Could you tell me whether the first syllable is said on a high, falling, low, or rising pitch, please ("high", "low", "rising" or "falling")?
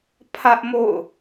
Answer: high